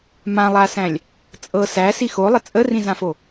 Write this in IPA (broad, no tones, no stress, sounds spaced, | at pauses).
m ã lˠ a s æ̃ lʲ | t͡sʼ ɤ s æ s i x o lˠ ə t͡sʼ ə r ĩ z ã f o